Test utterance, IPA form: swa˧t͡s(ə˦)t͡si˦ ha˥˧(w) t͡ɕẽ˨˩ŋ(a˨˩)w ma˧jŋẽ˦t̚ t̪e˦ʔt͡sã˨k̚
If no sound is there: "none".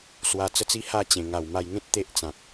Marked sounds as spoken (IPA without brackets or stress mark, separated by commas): ə˦, none, a˨˩